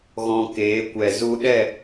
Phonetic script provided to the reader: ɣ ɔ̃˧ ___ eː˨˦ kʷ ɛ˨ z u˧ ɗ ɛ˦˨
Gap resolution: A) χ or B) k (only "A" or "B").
B